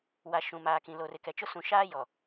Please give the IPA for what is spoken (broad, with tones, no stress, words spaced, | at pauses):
wa˨ ʃũ˨maː˨kĩ˨lo˨r ɪ˨kɛ˨t͡ʃʊ˦ sũ˨ʃaː˦jɔ˨